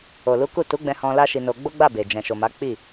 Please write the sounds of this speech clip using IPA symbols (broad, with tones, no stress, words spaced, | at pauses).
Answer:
o˨lu˨˦ ku˦˨ tu˨˦ɡ͡bɛ̃˧ hɔ̃˧ la˦ʃi˧no˧ ɡ͡bo˦ɡ͡ba˦˨be˨ d͡ʒɛ̃˨ʃo˨ma˨˦ k͡pi˦˨